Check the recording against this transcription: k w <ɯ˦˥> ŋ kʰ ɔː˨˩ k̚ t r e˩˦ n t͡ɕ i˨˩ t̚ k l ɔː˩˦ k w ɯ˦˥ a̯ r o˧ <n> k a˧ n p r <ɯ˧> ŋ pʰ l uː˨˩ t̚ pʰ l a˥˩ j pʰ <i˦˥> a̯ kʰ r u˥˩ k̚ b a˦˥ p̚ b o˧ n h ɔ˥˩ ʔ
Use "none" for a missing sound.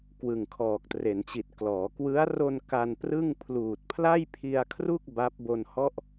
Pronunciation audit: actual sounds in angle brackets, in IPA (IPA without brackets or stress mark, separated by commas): ɯ˨˩, n, ɯ˥˩, i˧